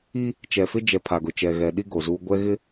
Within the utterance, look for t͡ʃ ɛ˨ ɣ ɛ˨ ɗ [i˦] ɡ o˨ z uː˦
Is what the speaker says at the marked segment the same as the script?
yes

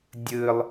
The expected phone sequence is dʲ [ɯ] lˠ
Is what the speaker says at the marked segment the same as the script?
yes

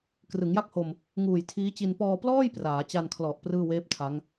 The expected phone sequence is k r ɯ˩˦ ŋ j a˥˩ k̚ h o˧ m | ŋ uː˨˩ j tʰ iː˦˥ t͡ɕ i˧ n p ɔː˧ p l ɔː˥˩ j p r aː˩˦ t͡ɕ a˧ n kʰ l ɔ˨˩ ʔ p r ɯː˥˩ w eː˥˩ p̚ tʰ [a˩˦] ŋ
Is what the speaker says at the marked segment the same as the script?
no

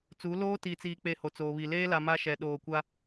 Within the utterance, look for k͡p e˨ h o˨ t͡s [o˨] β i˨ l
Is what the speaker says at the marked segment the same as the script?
no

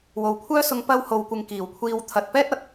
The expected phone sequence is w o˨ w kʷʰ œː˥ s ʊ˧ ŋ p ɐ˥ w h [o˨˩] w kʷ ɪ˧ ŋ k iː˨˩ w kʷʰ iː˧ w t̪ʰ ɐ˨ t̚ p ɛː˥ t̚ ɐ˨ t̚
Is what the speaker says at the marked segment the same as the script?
no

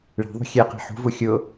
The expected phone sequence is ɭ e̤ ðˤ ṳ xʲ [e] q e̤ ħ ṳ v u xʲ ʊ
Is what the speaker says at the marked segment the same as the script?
no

